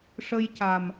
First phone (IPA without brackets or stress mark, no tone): ʂ